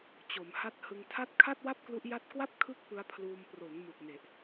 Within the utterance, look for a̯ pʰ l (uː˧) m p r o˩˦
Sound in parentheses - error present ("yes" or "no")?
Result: no